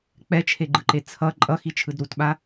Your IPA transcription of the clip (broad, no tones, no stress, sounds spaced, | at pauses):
k͡p ɛ t͡ʃʰ e ɡ͡ǃ ɯ ǃ e t͡sʰ ʌ ǃʼ ʌ x i t͡ʃʰ ɯ d ɾ u t ɓ a